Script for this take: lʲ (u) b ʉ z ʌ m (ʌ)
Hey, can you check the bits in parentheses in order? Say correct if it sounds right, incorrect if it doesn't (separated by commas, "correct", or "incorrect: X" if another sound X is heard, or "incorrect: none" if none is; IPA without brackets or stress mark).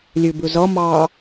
incorrect: ʉ, incorrect: ɑ